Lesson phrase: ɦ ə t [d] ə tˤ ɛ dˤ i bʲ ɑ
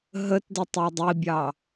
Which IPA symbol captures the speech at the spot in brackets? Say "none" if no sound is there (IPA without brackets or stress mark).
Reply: d